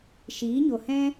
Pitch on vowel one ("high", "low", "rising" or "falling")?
rising